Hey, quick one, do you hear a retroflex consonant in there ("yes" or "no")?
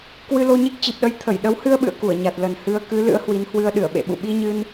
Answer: no